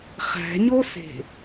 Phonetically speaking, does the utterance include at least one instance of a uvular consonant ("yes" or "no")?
yes